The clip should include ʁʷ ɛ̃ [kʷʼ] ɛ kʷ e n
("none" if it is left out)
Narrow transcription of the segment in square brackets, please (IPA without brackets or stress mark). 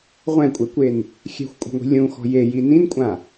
kʷʼ